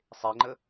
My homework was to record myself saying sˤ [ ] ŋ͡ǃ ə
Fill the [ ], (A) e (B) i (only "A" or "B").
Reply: A